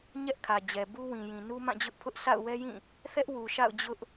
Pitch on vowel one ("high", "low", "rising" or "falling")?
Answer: high